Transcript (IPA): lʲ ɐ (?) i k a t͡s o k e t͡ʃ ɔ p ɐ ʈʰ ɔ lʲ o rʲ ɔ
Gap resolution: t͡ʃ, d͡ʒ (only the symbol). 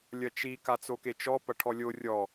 t͡ʃ